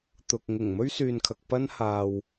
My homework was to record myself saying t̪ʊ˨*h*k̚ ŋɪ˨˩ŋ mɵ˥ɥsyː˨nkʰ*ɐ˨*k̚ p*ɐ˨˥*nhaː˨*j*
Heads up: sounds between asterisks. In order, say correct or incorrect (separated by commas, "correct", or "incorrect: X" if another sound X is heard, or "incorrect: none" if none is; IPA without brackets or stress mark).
incorrect: none, correct, incorrect: ɐ˥, incorrect: w